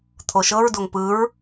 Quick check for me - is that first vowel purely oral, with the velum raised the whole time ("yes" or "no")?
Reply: yes